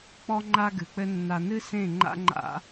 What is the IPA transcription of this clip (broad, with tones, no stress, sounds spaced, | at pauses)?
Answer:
k͡p ɔ˦ ŋ͡ǃ a˦ ɡ ɨ˨ k͡p ɘ˦ nː a˨ n ɨ˦ s ẽ˦˨ ŋ͡ǃ a̰˦ ŋ͡ǃ a̰˦